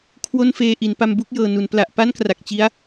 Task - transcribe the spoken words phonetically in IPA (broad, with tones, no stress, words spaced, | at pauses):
kʰwo˥˩nfeː˧ʔi˩˦n pa˧mbu˥˩k̚jɤː˨˩nu˩˦n pla˨˩ʔpa˥˩nkra˨˩k̚ t͡ɕi˦˥a̯